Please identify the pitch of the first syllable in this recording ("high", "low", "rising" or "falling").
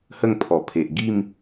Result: falling